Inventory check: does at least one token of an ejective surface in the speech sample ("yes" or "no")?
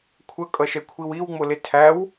yes